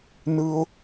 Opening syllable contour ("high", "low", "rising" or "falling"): high